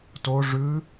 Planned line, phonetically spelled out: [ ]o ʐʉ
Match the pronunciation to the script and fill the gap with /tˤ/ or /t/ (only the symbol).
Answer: t